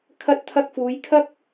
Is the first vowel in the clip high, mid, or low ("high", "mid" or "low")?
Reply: low